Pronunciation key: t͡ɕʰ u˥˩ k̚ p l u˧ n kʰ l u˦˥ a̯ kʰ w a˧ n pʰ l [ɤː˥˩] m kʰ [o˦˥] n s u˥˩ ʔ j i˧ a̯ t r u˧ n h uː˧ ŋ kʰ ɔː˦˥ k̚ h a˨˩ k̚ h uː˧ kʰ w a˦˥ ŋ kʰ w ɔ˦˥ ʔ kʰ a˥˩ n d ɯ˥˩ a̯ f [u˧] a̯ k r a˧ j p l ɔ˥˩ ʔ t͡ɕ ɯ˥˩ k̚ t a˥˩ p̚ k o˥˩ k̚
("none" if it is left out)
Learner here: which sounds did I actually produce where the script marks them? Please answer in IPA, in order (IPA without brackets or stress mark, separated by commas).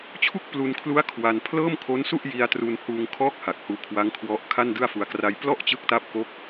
ɤː˥˩, o˦˥, u˧